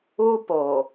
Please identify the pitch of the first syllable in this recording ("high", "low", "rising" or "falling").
high